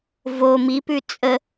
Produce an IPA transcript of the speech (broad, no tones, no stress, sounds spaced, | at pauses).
v o m i p ʉ t͡sʼ ə